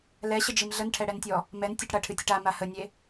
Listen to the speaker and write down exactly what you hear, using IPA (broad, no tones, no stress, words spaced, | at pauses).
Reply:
lɛɕəd͡ʒim ɮənʈʰɛɽɛntʲɔ | mɛn tʲəʈ ɽɐʈʰɨtʲəʈ ama hənʲe